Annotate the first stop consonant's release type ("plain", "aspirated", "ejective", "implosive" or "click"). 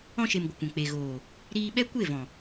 plain